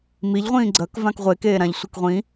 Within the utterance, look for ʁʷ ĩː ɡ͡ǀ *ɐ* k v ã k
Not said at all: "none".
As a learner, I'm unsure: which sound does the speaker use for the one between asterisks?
ɐ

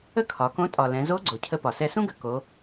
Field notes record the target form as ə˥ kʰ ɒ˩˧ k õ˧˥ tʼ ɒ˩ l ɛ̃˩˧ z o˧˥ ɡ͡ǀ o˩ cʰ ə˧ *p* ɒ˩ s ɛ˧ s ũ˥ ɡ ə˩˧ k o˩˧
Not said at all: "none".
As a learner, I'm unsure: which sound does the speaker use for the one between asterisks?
p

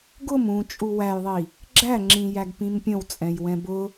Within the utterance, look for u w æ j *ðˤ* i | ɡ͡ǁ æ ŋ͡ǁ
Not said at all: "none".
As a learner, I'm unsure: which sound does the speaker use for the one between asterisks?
ðˤ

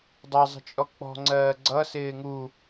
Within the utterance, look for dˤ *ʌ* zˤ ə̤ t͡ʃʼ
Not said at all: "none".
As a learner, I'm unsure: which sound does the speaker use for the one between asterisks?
ʌ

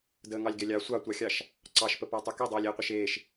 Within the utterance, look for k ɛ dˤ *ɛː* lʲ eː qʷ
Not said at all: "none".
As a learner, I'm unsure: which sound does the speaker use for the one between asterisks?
ɛː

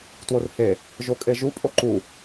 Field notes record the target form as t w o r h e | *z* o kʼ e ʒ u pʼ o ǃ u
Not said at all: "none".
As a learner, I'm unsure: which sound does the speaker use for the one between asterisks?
ʒ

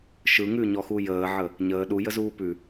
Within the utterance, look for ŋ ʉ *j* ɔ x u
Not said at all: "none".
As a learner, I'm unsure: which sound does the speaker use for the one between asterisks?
ɲ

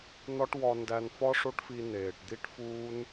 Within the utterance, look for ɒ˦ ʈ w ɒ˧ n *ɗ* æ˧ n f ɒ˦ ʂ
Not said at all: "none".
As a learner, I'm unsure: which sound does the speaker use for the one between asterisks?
d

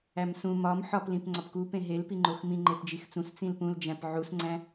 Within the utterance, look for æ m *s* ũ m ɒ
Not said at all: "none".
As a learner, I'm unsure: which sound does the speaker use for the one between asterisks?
s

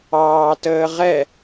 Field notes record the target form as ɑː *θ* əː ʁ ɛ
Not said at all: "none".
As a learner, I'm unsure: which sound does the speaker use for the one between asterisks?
t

